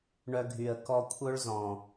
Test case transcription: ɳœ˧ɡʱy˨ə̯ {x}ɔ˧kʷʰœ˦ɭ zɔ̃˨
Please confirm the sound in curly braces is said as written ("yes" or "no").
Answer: no